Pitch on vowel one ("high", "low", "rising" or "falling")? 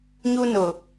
high